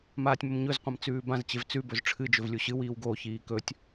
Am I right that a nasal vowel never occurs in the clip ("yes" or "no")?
no